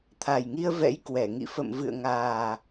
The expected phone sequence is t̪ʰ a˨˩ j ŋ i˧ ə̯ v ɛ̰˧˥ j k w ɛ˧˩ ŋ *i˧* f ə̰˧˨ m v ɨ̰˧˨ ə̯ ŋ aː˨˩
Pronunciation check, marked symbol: incorrect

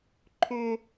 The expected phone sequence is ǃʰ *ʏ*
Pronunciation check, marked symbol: correct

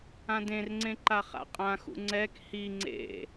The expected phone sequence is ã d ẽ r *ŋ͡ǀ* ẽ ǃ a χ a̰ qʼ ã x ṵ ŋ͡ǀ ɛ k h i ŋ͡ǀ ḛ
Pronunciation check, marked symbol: correct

